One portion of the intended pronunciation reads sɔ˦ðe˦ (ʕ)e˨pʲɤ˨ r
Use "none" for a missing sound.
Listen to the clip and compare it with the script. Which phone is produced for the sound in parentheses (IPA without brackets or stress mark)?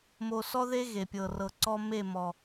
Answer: ɣ